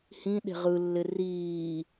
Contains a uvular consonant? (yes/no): yes